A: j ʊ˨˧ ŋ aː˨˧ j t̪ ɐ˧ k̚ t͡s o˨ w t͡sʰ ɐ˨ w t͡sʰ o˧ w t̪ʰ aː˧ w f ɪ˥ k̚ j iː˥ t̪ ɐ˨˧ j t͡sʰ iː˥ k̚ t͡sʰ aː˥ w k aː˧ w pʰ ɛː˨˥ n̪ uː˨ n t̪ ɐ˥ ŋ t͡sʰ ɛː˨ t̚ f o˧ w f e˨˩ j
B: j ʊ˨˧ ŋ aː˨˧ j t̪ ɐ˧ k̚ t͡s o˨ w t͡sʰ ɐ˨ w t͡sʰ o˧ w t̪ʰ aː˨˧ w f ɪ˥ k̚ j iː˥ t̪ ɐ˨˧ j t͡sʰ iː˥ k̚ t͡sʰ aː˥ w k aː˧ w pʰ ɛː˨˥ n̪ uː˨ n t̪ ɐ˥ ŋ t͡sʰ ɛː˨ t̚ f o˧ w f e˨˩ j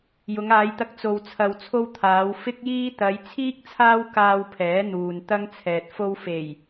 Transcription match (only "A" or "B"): B